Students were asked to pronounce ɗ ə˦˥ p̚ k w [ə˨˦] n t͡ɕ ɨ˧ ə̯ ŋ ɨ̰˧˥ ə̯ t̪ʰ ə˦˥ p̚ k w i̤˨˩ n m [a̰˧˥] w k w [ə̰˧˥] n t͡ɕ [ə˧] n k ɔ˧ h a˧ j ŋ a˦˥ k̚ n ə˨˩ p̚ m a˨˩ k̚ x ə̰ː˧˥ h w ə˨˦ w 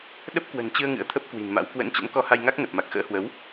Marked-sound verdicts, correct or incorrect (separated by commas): incorrect, correct, correct, incorrect